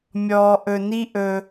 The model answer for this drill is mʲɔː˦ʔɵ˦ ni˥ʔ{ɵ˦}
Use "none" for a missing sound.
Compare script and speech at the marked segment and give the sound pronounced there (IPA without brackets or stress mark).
ɵ˦